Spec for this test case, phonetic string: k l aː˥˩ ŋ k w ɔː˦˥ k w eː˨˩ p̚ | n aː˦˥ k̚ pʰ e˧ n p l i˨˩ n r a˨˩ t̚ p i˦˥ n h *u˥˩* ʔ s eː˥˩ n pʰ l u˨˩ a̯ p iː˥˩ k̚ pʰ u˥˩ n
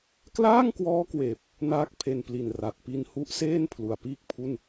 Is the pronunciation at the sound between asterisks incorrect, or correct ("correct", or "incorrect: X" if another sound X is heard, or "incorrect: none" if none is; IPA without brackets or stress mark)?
incorrect: u˦˥